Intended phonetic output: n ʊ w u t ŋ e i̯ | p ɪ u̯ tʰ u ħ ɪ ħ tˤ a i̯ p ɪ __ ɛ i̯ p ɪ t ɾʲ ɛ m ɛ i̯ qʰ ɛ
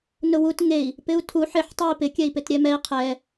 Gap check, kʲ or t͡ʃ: kʲ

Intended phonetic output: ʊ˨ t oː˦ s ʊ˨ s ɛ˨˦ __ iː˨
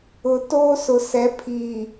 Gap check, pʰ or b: pʰ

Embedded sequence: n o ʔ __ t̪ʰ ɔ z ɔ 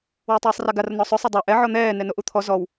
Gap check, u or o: u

